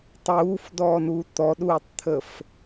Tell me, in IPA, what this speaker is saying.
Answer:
tˤuːfdɔːnuː t̪ɔɗuːtˤt̪ʰəf

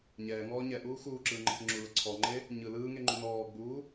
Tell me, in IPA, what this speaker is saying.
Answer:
ɲɛːŋɔː ɲɛʔuː xuːǁɯːŋ͡ǃəkə ŋ͡ǁulə ǀʰɔŋ͡ǃe | ɲɯ lɯːŋeŋ͡ǃu nɔːɡ͡buː

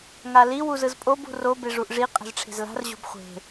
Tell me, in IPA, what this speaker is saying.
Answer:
ŋali wuzɯzpʼob ṳro beʐuʔʐi qʼɛ̤zʈ͡ʂʰe̤zla̤r ʑo̤bχʷe̤

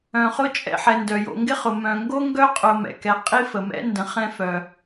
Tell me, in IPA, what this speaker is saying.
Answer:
œ̃˨χʊ˧t͡ʃʼɛ̰˨ħɛ˨ ndœ˨jo̰˧ ŋɡɪ˦χʊ˨ mœ̃˨ŋɡo˦ŋɡœ˦ qʼʊ˧mɛ̰˨ kɛ˨ qʼi˦fə˨mɛ̰˦ ndə̃˧ χɛ̃˦fœ˨

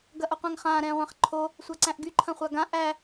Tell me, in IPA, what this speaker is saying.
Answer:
ɡɐʔoqʷæ̃ŋχãː ɾɛ̃ːʁʷæ̃χǃʰo | sʷaǀæ̃ʔɡy ǃʰɐ̃χʷaɡã ʔæ

